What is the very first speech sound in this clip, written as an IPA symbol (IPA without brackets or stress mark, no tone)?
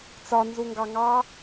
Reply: t͡s